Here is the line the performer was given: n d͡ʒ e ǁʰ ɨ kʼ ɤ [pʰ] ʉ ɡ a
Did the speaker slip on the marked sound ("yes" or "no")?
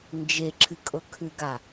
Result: yes